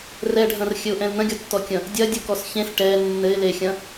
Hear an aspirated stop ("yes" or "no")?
no